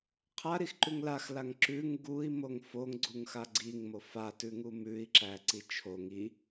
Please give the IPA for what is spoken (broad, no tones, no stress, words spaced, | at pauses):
qʰaɾixǃʉŋ laxlaŋ ǁʉŋ ɡui̯ moŋfoŋɡ͡ǀuŋxa ɡ͡ǀiŋmo fatʉŋu mʉi̯ǁæ ǀit͡ʃʰoŋ i